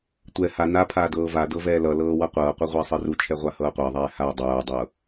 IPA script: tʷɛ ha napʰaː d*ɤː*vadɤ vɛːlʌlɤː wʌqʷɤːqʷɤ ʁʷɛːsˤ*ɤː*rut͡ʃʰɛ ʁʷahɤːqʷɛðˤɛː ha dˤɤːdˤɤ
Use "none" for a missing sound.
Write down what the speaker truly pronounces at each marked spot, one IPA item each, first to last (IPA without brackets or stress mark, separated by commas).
ɤː, ɤ